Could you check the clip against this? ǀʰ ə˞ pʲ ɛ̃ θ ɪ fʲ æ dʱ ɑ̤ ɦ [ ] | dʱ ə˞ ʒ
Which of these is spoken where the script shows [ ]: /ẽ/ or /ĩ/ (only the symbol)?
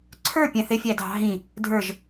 ĩ